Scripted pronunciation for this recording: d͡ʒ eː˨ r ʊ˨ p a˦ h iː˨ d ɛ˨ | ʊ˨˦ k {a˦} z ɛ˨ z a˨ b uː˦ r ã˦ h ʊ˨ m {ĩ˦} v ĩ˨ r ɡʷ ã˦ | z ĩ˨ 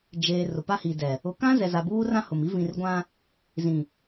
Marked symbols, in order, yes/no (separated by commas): no, no